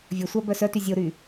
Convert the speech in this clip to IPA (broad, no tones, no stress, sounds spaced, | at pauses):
vʲ ɵ sʷ æ b œ s œ t y zʲ o ɾ y